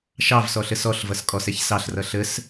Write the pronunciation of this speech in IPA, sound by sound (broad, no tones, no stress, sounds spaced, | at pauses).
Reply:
ʃ ɑ v s ɔ ɬ ə s ɔ ɬ v ʌ s kʼ ɔ s ɛ ç s ɑ ɬ r ʌ ɬ ə s